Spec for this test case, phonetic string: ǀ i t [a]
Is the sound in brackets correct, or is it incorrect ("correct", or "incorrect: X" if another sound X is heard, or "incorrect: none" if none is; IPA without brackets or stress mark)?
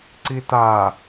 correct